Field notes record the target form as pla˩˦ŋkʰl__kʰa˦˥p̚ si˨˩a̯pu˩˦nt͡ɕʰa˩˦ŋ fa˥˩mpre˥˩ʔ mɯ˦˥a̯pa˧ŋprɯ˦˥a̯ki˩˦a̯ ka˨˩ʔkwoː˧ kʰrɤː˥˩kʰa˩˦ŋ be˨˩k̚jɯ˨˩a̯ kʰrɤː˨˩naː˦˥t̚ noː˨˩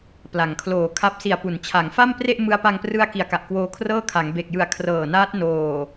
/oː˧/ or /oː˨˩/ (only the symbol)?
oː˨˩